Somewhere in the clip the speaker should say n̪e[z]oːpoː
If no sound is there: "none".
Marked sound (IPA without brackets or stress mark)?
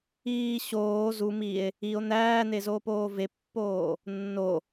z